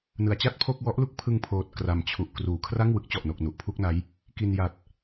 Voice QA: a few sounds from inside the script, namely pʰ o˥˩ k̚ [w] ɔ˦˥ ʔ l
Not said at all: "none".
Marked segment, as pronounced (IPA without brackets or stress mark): w